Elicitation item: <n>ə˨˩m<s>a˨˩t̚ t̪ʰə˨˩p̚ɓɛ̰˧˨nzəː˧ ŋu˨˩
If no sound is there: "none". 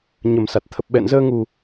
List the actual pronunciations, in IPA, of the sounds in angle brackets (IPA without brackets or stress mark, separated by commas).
ɲ, s